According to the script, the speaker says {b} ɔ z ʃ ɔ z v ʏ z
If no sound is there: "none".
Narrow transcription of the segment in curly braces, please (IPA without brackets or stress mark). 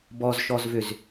b